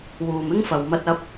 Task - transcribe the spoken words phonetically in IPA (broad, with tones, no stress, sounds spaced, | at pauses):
w uː˨ m ɪ˥ ŋ f ɐ˨ w m ɐ˧ t̚ ɐ˧ p̚